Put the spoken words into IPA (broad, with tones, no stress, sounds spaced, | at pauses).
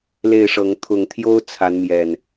l e˥˨ ɪ̯ ʂ ɤ˨˦ ŋ t̪ʰ ʊ˨˩ ŋ t̪ʰ j o˦ ʊ̯ t͡sʰ a˨˦ n m j ɛ˨˩ n